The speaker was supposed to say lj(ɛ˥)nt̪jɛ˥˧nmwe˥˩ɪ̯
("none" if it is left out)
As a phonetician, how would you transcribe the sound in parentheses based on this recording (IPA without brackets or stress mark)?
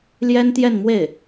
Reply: ɛ˥